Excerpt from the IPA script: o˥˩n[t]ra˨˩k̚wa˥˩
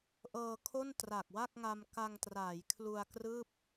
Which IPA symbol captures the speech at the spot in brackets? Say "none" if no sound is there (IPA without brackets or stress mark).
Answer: t